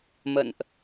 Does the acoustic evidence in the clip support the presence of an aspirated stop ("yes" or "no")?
no